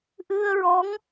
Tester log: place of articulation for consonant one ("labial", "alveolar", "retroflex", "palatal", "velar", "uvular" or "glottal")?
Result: glottal